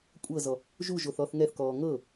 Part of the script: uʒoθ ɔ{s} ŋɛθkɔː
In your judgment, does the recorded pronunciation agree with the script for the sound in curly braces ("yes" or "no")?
no